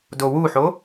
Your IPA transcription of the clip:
d o w u ħ o

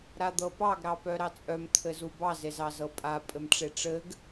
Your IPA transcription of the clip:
ɾ a d̪ ɤ p ɑ ɡ ɾ ɑ p œ ɾ ɑ t͡sʼ œ m t̪ʰ ɘ z u b ɑ z e z ɑ z ɤ pʼ a pʼ ɘ m ʈ͡ʂ e ʈ͡ʂ ɘ ɡ

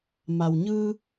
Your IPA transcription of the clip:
m a˩ w ɲ ɯː˧

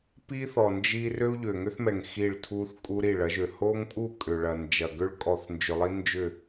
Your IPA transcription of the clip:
p i˦ θ ɔ˨ n d͡ʒ i˦ r ø˦ u̯ ʎ ø˨ ŋ ʏ˦ θ m ɛ˨ ŋ x i˦˨ ɭ tʰ u˦ θ kʼ u˦ ɾ i˦˨ ɭ ɐ˨˦ ʒ ø˨ h o˦ ŋ pʼ u˦˨ kʼ ʏ˨ ɭ ɐ˨ n d͡ʒ ɐ˨ ɡ ʏ˦ ɭ kʼ ɔ˨ θ n d͡ʒ ʏ˨ lˠ i˦ n d͡ʒ ʏ˦˨

